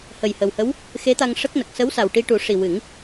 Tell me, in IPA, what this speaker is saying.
h ə˨˩ j h ə˨˩ w h ə˧˥ w | x e˧˥ t̪ a˧ ŋ ʂ ə˦˥ k̚ n ə˨˩ k̚ s ə˧˥ w s a˨˩ w ʈ i˧ ʈ u˨˩˦ ʂ i˨˩ w ɨ˨˩˦ ŋ

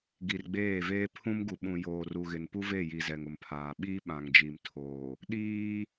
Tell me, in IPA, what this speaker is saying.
ɡ i˨ r ɡ͡b eː˦˨ v eː˦ pʰ ũ˦ m ɡ u˨ ɓ ũ˨ j oː˨ r u˨ ɣ ɪ˨ n p u˦ v e˦˨ j i˨ z ɛ˨ ŋ ʊ˨ m pʰ aː˨ ɓ iː˦ ɓ ã˨ ŋ d͡ʒ i˨ m tʰ oː˨ | ɗ iː˦

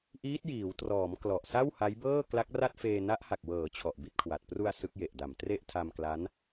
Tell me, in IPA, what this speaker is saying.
ʔ iː˦˥ t̚ j iː˩˦ w t r ɔː˩˦ m k l ɔ˨˩ ʔ s a˥˩ w h a˦˥ j b ɤː˥˩ k l a˦˥ k̚ r a˥˩ t̚ f eː˧ n a˦˥ ʔ h a˨˩ k̚ w ɤː˩˦ t͡ɕʰ ɔ˨˩ ʔ b i˥˩ t̚ kʰ w a˨˩ t̚ p r u˧ a̯ s ɯ˦˥ k̚ j e˨˩ ʔ d a˨˩ m t r e˥˩ ʔ tʰ a˧ m k l a˦˥ n

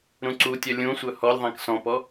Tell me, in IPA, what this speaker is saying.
ɾ ũ ǀ u tʲ œ lʲ ũ sʷ œ h ɔ lʲ ðˤ ɛ̃ k s ɔ̃ p ɔ

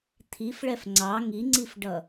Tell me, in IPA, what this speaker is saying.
t̪ʰ i f ɭ ɛ f ŋ͡ǀ ɑ ŋ i ŋ͡ǀ i f ɖ ʌ

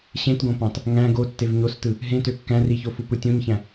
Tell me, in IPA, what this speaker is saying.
ɕ ẽ t ɡ õ p ɑ̃ t | ŋ æ̃ ɡ o tː e v ɲ o s t ɯ | ɦ ẽ t ø kː æ̃ r i ç o f u p ɯ tʲ õ ɲ ç æ̃

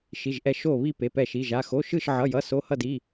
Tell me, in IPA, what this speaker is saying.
ʃ i˩˧˩ ʒ ʔ ɛ˧˩ ʃ o˧˩ β i˧˩ p e˩˧˩ p ɛ˧˩ ʃ i˩˧˩ ʒ a˩˧˩ x o˩˧˩ ʃ ɯ˧˩ ʃ ʕ ʌ˩˧˩ j ʌ˩˧˩ s o˩˧˩ h ʌ˧˩ d i˩˧˩

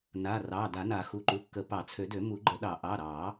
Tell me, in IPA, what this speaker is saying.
n a˩˧˩ r ɑ˩˧˩ d a˨˩˦ n a˨˩˦ x u˩˧˩ ǃ u˩˧˩ kː ə˨˩˦ p ɑ˨˩˦ t͡sʰ ø˨˩˦ d ø˨˩˦ m u˨˩˦ ɡ͡ǃ ə˨˩˦ ɗ ɑ˨˩˦ ʔ ɑ˩˧˩ ɾ ɑ˨˩˦

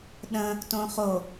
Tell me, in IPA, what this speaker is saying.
ɗ ə̃ | t õ χ o

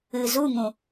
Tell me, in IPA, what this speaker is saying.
ɨ˨ z u˦˨ ŋ ũ˨

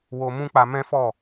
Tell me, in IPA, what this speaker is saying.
w o˧ m ũ˦ k͡p a˧ m ɛ̃˦ f ɔ˦˨

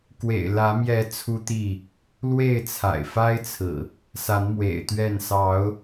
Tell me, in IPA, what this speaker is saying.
k w ḛ˨˩ ɪ̯ l ä˨˦ m j ɛ˨˦ t͡sʰ u˦ t̪ i˥˨ | l w e˥˨ ɪ̯ t͡sʰ a̰˨˩ ɪ̯ f a˦ ɪ̯ t͡sʰ ɹ̩˨˩ | s a˨˦ n m w ḛ˨˩ ɪ̯ t̪ ɥ ɛ˥˨ n s ɑ˨˦ ʊ̯

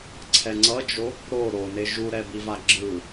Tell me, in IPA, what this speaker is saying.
ǀʰ ɛ ŋ͡ǀ ʌ d͡ʒ o | ɾ o ɾ o n e ʒ u ɾ ɛ b i v a ɡ͡ǁ ɯ

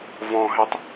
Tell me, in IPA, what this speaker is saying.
v ɔ̃ ɦ e tˤ

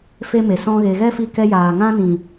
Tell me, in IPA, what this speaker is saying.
f e˦ m e˨ s ɔ̃˦ ɣ e˧ ɣ ɛ˦ f i˧ k ɛ˧ j aː˨ ŋ ã˦ n ĩ˨

